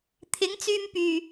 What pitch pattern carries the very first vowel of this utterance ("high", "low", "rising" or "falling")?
rising